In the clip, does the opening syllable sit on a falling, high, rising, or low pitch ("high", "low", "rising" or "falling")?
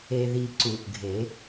low